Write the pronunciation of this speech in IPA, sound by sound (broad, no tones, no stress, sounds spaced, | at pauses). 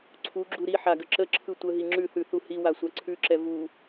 ǀʰ u ɡ͡ǁ u ɾ i ħ a ɡ ə ǁ ə ǁʰ ɯ tʷ ə ɦ i ŋ͡ǁ ʉ θ ʉ θ u h i w a sʷ a ǀʰ ʉ ǁ ɛ v u